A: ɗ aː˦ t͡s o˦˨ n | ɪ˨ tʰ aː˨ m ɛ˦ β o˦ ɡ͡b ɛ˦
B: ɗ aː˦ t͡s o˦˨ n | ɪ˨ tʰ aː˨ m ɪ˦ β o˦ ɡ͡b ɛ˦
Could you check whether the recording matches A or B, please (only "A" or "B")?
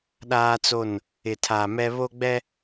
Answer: A